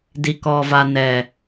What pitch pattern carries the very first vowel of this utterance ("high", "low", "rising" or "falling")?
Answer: low